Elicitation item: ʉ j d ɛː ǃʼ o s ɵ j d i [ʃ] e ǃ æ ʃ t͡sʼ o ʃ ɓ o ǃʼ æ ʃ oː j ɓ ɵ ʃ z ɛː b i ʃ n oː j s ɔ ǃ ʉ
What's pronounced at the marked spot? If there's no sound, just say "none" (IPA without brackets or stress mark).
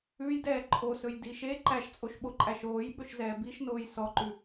ʃ